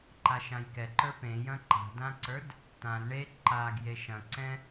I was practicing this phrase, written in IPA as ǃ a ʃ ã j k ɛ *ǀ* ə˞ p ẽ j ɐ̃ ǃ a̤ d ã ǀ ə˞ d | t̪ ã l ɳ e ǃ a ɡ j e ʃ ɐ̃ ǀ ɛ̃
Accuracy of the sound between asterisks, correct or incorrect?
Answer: incorrect